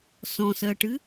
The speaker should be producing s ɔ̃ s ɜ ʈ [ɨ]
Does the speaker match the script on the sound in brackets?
yes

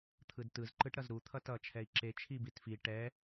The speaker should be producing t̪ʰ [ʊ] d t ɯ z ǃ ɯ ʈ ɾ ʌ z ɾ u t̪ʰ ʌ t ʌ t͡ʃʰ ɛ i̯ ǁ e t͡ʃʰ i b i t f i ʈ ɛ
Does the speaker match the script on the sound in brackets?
no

